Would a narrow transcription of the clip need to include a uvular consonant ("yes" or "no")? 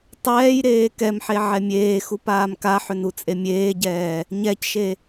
no